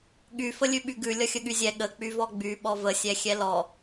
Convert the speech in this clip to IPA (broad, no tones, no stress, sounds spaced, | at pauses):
ɠ y f ə lʲ ʉ ɓ y ɡ ʉ lʲ ʌ xʲ ə ɠ y zʲ ɛ ɠ ə k͡p y v ɔ ɡ͡b y ɓ ɔ v ə sʲ ɛ xʲ ɛ l ɔ